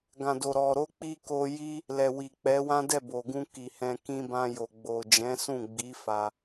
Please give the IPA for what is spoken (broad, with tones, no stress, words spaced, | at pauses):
ɡã˨do˨ɾɔ˨ ɾo˧k͡pi˧ ko˧ji˦ | lɛ˨wi˨k͡pɛ˨˦wã˦ dɛ˦˨bo˨ɡũ˧ ki˨hɛ̃˧ kĩ˧bã˧jo˨ ɡ͡bo˨d͡ʒɛ̃˨˦sũ˦˨ɡ͡bi˨˦ fa˧